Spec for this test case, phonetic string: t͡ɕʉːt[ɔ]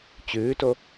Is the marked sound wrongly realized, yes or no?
yes